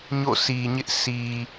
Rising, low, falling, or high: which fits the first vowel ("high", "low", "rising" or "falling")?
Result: falling